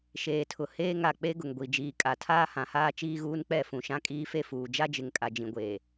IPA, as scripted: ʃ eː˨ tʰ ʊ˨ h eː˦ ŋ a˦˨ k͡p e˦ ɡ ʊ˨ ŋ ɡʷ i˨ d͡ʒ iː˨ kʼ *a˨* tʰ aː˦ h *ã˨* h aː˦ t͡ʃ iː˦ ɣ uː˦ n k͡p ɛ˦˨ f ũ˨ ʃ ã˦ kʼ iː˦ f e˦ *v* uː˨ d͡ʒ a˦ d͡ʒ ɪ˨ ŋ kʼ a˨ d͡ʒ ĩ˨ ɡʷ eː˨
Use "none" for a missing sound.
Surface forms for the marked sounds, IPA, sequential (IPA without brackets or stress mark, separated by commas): a˨, ã˨, f